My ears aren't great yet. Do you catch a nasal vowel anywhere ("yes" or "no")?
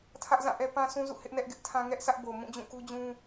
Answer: yes